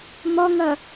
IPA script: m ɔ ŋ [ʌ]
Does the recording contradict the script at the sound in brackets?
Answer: no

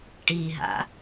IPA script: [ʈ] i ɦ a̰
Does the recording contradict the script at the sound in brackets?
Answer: no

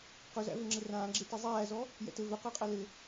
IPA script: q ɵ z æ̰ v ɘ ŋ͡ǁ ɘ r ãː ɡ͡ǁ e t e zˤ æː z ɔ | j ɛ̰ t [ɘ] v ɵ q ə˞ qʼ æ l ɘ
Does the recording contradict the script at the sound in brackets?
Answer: no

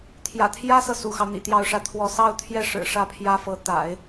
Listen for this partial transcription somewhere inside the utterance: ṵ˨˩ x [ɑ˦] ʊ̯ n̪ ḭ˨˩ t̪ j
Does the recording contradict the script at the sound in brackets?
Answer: no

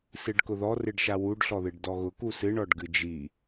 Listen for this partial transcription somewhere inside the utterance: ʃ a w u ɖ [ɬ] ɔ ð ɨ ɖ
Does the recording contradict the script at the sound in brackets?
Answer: no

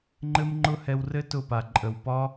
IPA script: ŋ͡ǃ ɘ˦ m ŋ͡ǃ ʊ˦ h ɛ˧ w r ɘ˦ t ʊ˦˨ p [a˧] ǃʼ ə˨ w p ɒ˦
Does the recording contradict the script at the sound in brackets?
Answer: yes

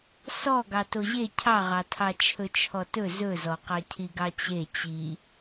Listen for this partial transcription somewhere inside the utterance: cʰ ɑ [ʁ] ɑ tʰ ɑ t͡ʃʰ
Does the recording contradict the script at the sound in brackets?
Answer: no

